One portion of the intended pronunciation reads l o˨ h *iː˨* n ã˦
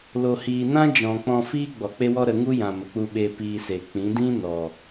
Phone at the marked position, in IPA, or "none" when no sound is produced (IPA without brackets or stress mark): iː˨